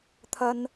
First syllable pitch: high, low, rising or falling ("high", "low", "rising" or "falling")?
high